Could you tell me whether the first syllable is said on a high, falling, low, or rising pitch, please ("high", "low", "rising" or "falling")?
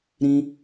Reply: high